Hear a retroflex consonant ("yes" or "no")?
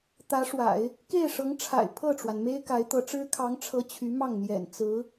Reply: yes